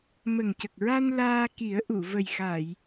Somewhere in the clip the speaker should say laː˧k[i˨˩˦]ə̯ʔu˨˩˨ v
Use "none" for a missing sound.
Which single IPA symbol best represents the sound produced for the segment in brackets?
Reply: i˨˩˦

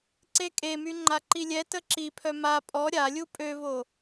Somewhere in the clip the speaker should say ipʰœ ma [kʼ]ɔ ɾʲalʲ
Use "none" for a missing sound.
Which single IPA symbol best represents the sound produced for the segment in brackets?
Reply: pʼ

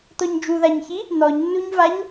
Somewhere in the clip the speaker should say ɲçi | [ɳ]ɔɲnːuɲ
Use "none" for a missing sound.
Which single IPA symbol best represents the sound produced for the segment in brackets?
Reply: n̪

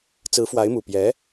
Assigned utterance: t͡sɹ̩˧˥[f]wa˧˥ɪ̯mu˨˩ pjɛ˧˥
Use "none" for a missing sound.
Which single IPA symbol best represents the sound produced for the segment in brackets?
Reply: f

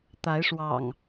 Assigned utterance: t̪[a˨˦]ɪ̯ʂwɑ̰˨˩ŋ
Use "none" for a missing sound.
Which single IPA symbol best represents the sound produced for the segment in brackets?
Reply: a˨˦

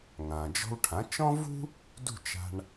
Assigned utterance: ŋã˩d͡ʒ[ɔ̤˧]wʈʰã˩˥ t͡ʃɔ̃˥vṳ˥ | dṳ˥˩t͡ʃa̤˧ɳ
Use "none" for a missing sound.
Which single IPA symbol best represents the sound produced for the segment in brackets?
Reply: ɔ̤˧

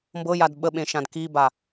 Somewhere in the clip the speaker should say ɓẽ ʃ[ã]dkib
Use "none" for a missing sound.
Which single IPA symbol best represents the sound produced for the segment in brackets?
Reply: ã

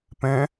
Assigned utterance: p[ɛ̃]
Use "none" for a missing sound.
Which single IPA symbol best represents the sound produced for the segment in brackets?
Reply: ɛ̃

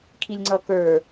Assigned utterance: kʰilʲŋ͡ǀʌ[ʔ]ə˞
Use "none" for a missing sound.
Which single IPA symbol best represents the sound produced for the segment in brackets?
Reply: k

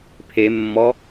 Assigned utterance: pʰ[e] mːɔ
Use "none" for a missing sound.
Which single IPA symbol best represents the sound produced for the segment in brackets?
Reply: e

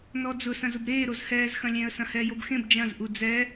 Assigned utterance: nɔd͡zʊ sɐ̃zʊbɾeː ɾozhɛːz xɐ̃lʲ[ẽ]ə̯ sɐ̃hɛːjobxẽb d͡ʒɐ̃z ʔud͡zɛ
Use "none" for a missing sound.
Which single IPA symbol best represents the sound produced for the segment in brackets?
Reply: ẽ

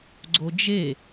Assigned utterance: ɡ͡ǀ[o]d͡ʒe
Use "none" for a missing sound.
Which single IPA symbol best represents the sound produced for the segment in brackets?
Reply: o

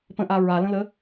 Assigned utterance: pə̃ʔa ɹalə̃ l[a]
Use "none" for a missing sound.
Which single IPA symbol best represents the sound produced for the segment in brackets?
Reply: ə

